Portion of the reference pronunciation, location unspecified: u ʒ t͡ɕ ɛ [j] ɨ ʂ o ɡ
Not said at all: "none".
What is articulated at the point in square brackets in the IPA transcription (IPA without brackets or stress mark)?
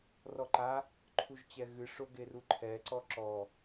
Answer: ɣ